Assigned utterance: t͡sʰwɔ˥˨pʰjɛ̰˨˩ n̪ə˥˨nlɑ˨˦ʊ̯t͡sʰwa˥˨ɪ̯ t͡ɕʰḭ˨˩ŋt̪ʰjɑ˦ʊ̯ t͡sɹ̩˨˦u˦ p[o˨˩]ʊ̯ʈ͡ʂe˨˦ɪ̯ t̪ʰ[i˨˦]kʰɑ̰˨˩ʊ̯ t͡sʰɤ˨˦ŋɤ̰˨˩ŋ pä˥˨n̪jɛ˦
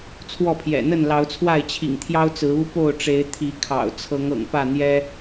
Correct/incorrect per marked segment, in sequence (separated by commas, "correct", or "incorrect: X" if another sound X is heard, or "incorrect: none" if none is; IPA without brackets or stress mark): incorrect: o˥˨, correct